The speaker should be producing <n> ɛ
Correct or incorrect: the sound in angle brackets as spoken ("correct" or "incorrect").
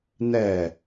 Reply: correct